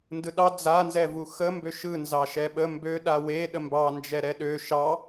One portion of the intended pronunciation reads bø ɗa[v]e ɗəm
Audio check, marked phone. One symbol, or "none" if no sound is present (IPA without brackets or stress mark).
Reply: w